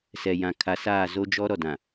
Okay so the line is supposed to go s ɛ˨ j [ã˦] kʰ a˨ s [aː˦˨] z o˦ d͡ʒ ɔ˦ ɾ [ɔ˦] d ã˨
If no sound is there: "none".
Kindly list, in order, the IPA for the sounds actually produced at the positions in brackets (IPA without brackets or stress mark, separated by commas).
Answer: ã˨, aː˦˨, ɔ˨